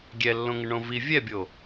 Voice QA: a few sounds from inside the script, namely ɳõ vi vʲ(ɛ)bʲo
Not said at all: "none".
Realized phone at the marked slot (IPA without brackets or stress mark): ɛ